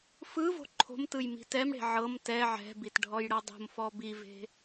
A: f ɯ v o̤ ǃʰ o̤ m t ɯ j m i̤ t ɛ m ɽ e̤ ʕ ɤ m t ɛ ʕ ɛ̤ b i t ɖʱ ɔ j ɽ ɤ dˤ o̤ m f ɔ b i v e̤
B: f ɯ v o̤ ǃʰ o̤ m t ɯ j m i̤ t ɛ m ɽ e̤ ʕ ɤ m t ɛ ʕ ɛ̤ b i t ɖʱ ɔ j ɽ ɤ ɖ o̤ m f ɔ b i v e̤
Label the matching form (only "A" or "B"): A